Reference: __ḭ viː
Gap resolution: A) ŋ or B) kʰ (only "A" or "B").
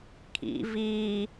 B